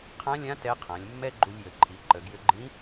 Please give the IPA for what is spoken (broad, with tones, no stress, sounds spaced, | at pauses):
qʰ ã˧˥ lʲ ã˧˥ t ɛ˧˥ qʰ ã˩˧ lʲ mː ɛ˥ ɡ͡ǃ u˧ lʲ j ə˩˧ ǃʰ i˩˧ ǃ ə˩˧ ɡ j ʏ˧ ɡ͡ǃ ĩ˧˥